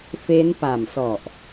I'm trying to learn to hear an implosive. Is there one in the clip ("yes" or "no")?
no